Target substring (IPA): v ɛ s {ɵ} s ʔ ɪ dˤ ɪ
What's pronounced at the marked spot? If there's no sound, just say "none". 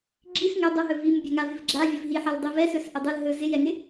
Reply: ɵ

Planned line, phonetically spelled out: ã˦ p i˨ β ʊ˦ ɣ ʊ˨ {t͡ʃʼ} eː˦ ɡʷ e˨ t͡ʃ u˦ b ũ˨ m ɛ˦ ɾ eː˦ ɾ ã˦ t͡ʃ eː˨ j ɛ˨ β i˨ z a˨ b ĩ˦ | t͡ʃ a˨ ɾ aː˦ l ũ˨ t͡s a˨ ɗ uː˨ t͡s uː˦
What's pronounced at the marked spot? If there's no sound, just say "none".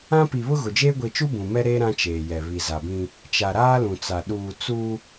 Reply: d͡ʒ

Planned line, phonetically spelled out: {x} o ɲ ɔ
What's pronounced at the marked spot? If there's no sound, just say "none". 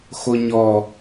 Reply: x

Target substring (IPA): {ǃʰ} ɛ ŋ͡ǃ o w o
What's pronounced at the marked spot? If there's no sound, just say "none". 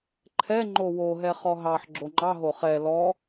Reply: ǃʰ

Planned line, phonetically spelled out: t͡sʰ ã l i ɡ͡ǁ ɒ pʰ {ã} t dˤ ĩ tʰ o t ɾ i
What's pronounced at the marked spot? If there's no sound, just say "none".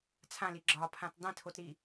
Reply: ã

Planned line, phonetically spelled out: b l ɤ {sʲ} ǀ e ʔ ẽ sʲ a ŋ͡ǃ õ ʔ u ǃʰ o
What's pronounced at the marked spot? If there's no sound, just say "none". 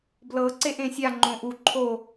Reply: none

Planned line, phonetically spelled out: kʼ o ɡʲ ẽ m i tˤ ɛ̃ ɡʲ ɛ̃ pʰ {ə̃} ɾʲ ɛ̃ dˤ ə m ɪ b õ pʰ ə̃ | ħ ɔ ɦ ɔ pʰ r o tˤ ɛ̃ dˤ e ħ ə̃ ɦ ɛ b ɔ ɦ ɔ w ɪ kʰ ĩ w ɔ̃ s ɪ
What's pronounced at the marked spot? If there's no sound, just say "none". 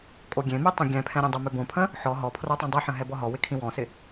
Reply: ɛ̃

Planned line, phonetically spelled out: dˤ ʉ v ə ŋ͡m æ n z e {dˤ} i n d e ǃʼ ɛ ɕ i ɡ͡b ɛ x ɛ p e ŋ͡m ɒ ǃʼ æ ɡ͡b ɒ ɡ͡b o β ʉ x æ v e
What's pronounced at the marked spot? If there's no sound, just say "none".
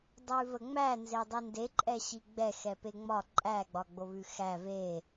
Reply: dˤ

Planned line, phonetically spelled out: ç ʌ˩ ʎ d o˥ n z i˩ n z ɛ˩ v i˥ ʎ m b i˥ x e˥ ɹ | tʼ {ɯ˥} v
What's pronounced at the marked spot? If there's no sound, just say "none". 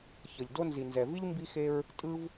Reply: ɯ˥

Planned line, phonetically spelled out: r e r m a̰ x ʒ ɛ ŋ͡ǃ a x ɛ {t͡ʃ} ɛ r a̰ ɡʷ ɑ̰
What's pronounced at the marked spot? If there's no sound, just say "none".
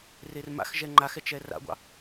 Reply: t͡ʃ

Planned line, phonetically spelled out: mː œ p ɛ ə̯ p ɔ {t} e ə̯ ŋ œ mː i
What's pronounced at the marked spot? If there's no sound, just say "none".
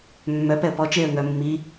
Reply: t͡ʃ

